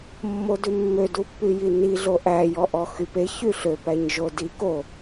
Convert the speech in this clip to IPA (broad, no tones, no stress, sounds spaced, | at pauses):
mː o d ʉ mː ø d u pː y j i n i ɮ o ʔ æ j ɔ ʔ ɔ x y p e ç y ɬ ø p æ ɲ ʒ o d i k o